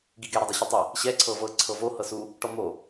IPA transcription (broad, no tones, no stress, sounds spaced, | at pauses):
ɡ i ɡ ɛ ɾ ɤ dˤ u ɕ e tˤ i | ɕ ɛ ǀʰ ɤ v ɤ ǀʰ ɤ v o h ɤ s u | ʈ ɔ m o